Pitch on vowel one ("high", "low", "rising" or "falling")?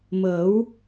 rising